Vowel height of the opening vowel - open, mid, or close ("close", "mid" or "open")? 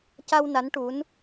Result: open